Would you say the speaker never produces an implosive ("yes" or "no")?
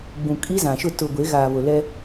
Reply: yes